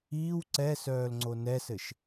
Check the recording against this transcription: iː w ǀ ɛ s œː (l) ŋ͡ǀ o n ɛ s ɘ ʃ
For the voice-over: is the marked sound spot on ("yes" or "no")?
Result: yes